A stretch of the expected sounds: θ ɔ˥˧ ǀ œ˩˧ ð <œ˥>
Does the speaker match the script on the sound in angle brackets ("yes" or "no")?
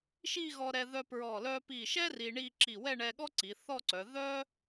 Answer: yes